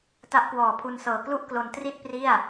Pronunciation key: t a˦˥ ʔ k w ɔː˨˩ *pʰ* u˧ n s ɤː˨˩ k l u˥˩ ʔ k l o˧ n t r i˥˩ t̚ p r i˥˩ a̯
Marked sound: correct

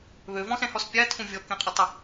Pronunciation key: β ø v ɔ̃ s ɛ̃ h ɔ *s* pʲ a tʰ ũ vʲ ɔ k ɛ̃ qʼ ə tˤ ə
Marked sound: correct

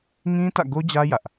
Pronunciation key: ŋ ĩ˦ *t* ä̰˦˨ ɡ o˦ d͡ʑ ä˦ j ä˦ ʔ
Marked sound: correct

